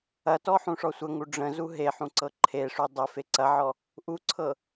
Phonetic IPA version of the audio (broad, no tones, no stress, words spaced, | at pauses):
ɐtɔħũʂɔ sʷəŋu ɖ͡ʐə̃zu ɦeħũǀɤ ǃʰeʂu dˤəfe ǀɐʕɔ | ʔuǀʰɤ